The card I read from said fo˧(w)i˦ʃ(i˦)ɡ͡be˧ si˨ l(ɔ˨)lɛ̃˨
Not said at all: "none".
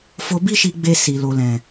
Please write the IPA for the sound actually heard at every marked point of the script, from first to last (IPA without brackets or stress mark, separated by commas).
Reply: b, i˧, o˨